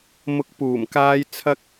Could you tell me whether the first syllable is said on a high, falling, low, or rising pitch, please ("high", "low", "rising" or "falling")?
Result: rising